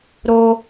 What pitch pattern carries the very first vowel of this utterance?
high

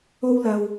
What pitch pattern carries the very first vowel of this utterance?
high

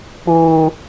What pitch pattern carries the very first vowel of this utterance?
high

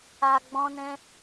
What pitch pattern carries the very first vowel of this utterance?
low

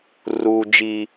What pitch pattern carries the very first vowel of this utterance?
low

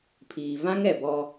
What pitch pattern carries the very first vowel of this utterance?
low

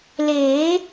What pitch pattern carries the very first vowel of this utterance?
rising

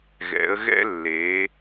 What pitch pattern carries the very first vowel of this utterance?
rising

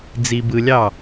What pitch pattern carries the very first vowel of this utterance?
low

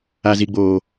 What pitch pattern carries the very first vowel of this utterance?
low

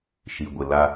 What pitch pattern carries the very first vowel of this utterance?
low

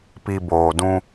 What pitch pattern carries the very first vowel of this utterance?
low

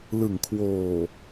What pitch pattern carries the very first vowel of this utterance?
low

